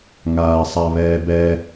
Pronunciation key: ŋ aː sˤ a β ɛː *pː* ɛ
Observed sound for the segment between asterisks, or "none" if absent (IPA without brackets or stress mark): b